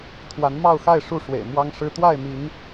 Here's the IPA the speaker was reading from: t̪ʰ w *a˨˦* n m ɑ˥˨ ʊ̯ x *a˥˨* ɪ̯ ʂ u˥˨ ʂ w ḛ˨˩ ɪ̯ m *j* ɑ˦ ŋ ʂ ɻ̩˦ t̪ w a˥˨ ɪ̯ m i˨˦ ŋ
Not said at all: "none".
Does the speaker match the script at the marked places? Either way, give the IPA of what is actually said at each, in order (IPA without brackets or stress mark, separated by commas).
a˨˦, a˥˨, w